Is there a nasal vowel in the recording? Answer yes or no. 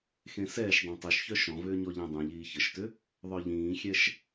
yes